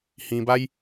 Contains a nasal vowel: yes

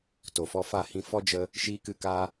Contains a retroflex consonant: no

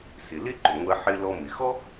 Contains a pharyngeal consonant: yes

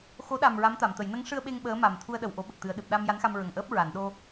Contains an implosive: yes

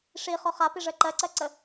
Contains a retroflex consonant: yes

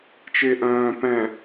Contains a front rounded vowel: yes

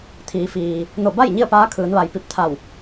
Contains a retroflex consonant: no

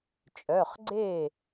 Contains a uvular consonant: yes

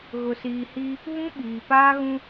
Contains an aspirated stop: no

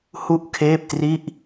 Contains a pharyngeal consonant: no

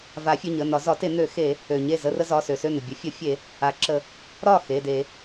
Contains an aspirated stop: no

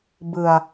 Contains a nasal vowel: no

